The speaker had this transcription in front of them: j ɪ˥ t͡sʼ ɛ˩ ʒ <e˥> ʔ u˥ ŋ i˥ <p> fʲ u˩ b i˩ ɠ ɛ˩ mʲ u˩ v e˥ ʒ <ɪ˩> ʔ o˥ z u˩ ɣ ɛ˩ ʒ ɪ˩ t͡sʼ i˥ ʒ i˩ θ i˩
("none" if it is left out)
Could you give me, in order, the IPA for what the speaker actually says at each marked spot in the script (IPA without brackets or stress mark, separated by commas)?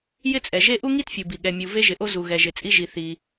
e˥, t, ɪ˩